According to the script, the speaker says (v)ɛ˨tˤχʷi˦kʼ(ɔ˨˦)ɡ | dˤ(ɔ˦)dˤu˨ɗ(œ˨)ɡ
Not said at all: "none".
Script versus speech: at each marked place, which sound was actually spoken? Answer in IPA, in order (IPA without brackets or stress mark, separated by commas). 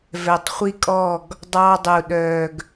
v, ɔ˦˨, ɑ˦, œ˨